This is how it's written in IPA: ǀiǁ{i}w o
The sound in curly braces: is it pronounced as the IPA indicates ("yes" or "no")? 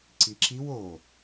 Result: yes